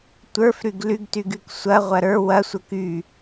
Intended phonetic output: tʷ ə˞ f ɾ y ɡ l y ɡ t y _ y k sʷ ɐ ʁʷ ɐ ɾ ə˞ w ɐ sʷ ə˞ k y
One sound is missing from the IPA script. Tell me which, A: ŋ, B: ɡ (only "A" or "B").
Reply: B